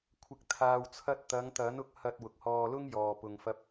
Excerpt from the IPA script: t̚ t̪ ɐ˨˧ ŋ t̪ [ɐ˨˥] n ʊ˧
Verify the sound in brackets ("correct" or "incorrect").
correct